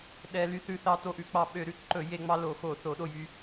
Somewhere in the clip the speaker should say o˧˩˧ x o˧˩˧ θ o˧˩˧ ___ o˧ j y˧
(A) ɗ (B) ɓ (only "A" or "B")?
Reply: A